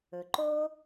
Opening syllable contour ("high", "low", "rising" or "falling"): low